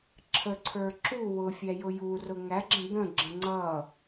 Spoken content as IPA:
ǁʰəǀʰə˞ ǁu wʊfʲæjʊ jurʊ ŋæɡ͡ǁə̃ d̪ə̃ɡ͡ǁə̃ ŋ͡ǀʌ

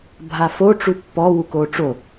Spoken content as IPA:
bʱafo ʈ͡ʂupːɔ wukoʈ͡ʂo

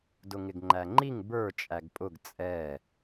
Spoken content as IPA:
dʊŋɪɡŋ͡ǃæŋ͡ǃiŋ bə˞ t͡ʃʼæɡpʼʊɡ t͡sʼɛ

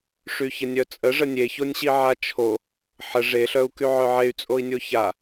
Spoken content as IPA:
ʂyçənʲœt͡sʼə ʐənʲeçonʲɕi ʕat͡ʃʰo | ħə ʐeɬœu̯ky ʕœʕey̯t͡sʼoi̯nʲo ça

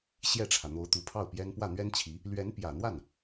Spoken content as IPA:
ɕjɛ˥˩ʈ͡ʂʰä˩n̪o˧˥ʊ̯ t̪u˧˥pʰɑ˥˩ʊ̯pjɛ˥n pwä˥˩n̪ɥɛ˥nt͡ɕʰi˧˥ | lɥɛ˧˥npjä˨˩n̪wa˥˩n

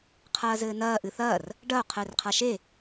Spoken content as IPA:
qʰɐːzɘːnɐː ʔɨθɐːr | ɖɐo̯ qʰɘːrqʰaʃe

